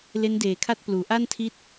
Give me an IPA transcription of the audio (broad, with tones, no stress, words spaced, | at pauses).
le˦˥ndeː˨˩kʰa˥˩t̚ pluː˩˦ʔa˥˩ntʰi˦˥t̚